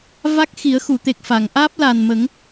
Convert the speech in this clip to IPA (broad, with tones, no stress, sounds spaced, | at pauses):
v a˦˥ k̚ x i˨˩˦ ə̯ x u˨˩˨ t̪ e˨˩ k̚ f a˨˩˨ ŋ ʔ aː˦˥ p̚ l a˨˩ n m ə˨˩˦ ŋ